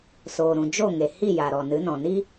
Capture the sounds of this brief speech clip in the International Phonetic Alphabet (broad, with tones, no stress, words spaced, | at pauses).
soː˨ɾũ˨ d͡ʒo˦˨ŋe˨ hi˦˨ ja˨ɾɔ˨nɨ˨˦nɔ̃˨ ni˦